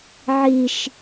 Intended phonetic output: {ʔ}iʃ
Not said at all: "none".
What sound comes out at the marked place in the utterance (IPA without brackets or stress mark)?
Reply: ʕ